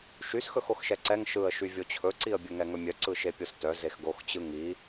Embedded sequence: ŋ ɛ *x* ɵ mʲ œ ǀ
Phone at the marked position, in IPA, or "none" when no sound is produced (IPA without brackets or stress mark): ŋ